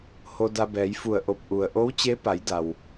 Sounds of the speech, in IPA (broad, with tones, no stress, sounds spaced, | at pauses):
h o˧ d a˧ b ɛː˩˧ j f u˧˩ ə̯ ʔ o˧˩ p̚ ʔ u˩ ə̯ ʔ o˧˥ w t͡ɕ e˧˥ p a˩˧ j d a˩ w